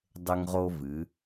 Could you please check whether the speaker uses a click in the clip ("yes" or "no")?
no